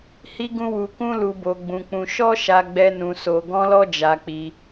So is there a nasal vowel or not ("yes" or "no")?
yes